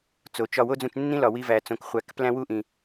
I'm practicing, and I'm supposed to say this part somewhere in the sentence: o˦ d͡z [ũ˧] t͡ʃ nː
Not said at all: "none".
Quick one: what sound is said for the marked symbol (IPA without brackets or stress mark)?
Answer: ũ˧